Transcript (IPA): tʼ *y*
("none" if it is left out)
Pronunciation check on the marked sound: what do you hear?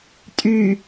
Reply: y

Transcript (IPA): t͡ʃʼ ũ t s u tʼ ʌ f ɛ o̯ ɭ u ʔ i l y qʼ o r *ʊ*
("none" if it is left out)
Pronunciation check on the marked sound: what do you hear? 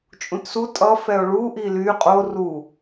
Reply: u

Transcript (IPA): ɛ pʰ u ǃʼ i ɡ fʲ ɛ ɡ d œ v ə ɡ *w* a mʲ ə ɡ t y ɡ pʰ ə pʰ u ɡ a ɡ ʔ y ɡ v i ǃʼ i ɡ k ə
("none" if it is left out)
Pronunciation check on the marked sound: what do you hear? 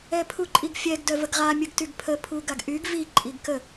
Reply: ʁ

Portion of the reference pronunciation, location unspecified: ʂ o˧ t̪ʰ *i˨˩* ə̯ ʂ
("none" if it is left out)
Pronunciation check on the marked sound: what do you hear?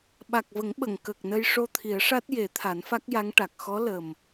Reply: i˨˩˦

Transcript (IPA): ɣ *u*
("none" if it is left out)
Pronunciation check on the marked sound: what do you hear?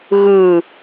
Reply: ɯ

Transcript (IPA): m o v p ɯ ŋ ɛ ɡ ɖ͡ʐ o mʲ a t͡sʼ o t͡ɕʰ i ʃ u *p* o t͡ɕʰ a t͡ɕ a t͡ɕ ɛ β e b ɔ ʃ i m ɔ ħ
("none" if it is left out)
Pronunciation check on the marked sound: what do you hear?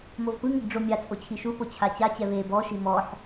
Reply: p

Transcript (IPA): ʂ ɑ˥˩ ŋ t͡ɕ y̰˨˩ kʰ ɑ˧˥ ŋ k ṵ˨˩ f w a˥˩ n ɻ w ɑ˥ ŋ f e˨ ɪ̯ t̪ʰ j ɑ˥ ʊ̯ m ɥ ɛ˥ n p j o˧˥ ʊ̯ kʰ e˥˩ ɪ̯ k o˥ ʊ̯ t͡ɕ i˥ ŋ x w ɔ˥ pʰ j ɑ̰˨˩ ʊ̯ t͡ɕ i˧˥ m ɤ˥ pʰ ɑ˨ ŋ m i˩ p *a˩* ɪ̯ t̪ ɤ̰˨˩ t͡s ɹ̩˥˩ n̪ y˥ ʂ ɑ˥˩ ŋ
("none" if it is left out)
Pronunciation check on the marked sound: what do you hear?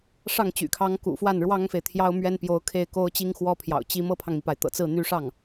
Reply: a˩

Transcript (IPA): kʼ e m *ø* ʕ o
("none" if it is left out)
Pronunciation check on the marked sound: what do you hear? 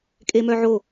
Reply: œ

